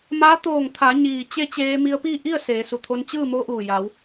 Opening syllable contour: rising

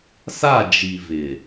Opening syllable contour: falling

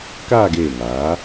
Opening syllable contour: falling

